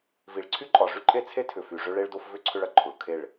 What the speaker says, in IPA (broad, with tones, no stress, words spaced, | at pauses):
vi˨ɭǀʰy˦ǃʼɒ˨ʐy˦ ǃʼe˦t͡sʰe˦tʰʏ˨ fy˨ʐʏ˦ ɭe˦ɭdo˦fvʏ˦ ǀʰʏ˦ɭɐ˨ǃʰu˨ɭ kʰe˦˨ɭ